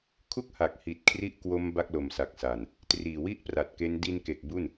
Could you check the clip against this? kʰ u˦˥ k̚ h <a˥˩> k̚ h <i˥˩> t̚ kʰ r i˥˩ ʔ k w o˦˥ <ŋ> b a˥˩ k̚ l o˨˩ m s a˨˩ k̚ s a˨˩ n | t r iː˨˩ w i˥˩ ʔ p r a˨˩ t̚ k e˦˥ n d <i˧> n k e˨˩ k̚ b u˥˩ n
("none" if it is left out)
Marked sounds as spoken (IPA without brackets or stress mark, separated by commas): a˨˩, i˨˩, m, i˧